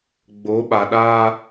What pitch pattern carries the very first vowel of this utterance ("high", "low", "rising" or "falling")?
rising